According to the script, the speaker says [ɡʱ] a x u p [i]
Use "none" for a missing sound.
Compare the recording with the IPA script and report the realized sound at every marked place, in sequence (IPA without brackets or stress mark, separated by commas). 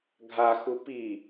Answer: ɡʱ, i